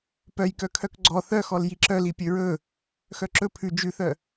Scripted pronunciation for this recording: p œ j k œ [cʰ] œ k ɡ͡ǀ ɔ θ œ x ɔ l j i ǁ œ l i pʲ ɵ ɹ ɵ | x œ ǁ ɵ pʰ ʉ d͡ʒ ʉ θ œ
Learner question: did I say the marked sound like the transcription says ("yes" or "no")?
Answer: no